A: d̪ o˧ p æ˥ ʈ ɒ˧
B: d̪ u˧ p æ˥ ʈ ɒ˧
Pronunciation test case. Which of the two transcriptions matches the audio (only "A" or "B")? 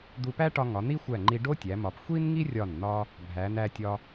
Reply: B